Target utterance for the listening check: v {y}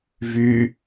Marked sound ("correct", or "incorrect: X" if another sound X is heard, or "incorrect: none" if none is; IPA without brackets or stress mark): correct